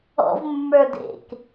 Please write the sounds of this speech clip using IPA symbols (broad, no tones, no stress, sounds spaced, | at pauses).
ɔ̰ v mː ə˞ d ḛ k